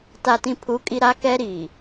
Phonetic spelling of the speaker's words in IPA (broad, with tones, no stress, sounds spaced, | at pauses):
t a˨ t ĩ˨ pʰ u˨˦ kʼ i˨ ɾ a˦ k ɛ˦ ɾ iː˨